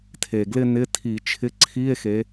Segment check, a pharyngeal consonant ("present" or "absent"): absent